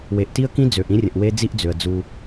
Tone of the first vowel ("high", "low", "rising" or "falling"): low